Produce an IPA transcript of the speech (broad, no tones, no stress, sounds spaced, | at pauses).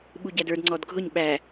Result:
ɓ u ɟ æ d ə˞ d ŋ͡ǀ ɔ d ɡʱ ʊ ɲ ɓ æ